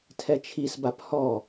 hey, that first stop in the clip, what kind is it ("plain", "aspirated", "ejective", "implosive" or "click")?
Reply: aspirated